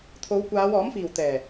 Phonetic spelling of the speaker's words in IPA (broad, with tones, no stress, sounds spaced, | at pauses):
t̪ʰ o˨˧ w kʷ aː˨˧ w ɔː˨˥ m f iː˨˩ w t̪ ɛː˨˩